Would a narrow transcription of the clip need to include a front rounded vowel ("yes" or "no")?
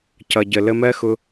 no